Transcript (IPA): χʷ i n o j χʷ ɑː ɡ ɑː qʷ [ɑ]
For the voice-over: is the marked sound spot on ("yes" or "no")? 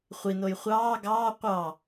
yes